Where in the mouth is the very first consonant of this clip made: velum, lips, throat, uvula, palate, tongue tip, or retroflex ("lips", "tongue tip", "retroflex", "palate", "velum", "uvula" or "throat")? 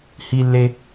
throat